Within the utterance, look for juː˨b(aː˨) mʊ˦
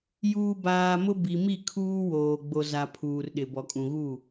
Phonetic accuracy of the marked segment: correct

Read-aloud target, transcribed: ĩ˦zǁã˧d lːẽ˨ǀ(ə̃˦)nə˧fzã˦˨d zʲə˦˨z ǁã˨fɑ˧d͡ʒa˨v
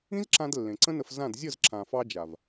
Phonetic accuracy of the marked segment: correct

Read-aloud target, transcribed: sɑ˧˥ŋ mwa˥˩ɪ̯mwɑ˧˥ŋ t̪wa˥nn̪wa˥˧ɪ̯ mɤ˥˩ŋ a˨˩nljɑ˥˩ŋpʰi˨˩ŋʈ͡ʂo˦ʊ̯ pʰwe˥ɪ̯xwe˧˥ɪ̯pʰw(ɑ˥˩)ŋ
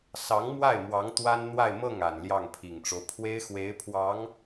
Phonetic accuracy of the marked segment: incorrect: ɑ˧˥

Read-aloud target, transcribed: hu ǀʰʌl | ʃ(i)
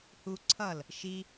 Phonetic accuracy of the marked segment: correct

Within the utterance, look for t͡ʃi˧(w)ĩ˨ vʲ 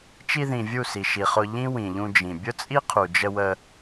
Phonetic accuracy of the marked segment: incorrect: ð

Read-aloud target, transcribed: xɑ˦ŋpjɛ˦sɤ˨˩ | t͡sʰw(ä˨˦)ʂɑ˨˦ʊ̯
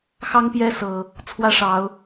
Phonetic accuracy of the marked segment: incorrect: ä˥˨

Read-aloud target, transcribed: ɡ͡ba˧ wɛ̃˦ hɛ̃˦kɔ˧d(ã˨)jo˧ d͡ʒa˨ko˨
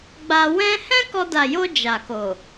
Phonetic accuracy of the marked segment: incorrect: a˨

